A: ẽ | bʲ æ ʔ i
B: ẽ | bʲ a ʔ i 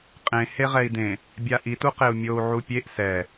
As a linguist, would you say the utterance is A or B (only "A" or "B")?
B